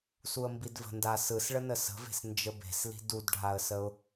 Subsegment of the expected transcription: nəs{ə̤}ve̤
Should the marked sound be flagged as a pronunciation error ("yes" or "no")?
no